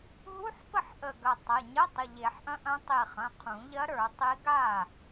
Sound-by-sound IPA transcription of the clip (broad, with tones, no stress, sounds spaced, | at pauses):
ɦ u˧˥˧ ħ p ə˥˩ ħ ʔ ə˧˩ ɡ ɐ˧˩ tˤ ɐ˩˧˩ ɲ ə˧˥˧ tˤ ə˩˧˩ ʎ e˨˩˦ ħ ʔ ɐ̃˧˥ ʔ ɐ̃˧˥ tˤ i˧˩ χ ɐ̃˩˧˩ qʰ ũ˨˩˦ ʎ ɐ˧˥ ɾ ə˞˨˩˦ tˤ i˧˥ ɡ a˥˩